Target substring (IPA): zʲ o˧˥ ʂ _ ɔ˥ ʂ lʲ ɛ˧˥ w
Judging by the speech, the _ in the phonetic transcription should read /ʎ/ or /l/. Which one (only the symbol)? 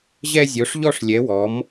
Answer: ʎ